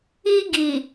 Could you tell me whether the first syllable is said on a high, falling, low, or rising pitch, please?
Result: high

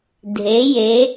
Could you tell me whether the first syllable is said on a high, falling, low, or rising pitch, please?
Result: rising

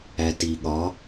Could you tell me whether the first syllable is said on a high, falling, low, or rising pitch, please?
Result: low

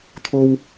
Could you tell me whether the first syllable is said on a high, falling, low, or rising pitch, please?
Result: high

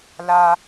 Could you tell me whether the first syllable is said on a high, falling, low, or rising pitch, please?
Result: high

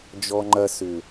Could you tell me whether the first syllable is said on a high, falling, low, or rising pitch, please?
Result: high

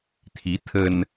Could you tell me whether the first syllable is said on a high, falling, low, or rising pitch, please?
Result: rising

